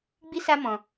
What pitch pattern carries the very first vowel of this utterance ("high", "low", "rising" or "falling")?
high